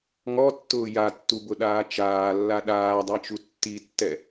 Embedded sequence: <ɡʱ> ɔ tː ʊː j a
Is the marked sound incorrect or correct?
incorrect